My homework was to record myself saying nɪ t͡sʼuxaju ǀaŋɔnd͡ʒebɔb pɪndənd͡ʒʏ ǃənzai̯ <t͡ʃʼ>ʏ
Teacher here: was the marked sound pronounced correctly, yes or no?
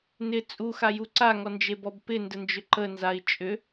yes